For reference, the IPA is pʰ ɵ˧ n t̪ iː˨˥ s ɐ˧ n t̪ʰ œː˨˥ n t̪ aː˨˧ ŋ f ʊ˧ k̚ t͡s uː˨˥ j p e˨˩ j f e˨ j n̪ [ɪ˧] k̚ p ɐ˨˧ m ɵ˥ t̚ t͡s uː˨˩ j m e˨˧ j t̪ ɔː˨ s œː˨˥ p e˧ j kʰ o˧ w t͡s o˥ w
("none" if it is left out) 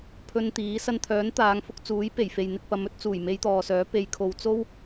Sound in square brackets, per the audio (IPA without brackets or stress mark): ɪ˧